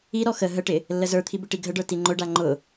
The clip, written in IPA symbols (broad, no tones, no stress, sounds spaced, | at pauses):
i ɾ ɔ x ə ɦ ə ʈ ɪ | lː ə z ə˞ t̪ʰ i b ɪ ʈ i ɡʱ ə ɖ ə˞ t i ŋ͡ǃ ʊ ɖ a ŋ͡ǃ ʊ